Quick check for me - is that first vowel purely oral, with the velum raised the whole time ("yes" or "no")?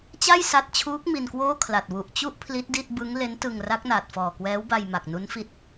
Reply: yes